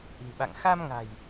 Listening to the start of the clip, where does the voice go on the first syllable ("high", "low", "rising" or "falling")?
low